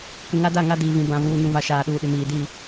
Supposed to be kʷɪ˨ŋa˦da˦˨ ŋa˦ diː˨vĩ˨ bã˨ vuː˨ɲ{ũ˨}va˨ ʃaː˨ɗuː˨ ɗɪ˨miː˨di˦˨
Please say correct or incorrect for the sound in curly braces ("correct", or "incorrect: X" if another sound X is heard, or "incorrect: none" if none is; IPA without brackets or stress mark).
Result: correct